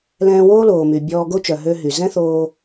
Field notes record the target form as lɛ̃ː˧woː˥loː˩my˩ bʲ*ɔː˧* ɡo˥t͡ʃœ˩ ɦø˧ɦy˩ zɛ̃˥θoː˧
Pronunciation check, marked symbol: correct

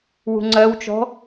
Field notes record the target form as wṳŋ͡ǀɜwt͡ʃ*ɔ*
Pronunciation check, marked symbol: incorrect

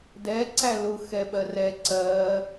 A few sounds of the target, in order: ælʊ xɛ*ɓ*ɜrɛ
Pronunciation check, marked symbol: correct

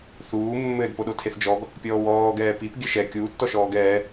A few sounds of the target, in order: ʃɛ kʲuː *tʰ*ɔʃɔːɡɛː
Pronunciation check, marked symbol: incorrect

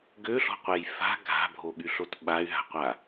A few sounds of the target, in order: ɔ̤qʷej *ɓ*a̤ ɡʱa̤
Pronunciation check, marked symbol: incorrect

